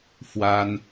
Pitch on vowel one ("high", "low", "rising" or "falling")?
high